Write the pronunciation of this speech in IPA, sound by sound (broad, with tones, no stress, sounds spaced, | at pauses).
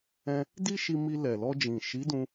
ɛ̃˧ | d i˦ ʃ i˧ m i˧ l ɛ˨ l ɔ˧ d͡ʒ ĩ˨ ʃ i˨˦ d ũ˧